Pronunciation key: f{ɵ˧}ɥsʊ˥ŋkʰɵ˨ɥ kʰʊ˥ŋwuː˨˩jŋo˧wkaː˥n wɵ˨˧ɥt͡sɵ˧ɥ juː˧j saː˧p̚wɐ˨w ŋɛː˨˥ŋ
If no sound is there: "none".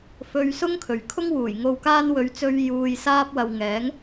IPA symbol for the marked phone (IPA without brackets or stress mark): ɵ˧